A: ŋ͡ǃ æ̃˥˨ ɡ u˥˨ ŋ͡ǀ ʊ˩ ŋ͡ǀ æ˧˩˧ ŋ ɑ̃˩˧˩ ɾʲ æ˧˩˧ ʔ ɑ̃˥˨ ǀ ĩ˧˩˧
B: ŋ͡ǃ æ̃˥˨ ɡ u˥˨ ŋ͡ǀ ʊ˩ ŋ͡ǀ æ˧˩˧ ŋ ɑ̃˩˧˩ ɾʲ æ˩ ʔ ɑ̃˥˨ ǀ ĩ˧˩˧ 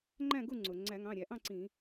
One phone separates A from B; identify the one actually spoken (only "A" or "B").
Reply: A